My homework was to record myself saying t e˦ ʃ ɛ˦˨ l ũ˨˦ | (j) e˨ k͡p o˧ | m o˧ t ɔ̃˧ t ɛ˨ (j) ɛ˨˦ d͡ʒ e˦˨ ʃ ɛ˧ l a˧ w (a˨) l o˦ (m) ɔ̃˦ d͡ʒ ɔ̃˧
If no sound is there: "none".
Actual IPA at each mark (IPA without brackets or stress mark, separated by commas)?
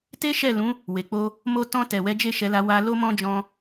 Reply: w, w, a˧, m